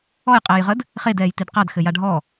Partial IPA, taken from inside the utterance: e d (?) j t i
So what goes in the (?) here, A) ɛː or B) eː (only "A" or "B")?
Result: A